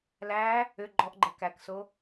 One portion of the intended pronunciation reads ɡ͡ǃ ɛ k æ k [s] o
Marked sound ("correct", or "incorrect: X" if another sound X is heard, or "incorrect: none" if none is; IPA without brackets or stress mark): correct